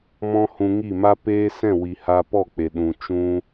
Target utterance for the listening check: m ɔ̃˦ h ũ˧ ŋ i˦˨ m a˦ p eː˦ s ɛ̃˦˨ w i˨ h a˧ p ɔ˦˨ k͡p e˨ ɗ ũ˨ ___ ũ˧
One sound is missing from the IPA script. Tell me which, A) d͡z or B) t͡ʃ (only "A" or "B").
B